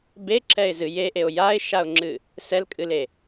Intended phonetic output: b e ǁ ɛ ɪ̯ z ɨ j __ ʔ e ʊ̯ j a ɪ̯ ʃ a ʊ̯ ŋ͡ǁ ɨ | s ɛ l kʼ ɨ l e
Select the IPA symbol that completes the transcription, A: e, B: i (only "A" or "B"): A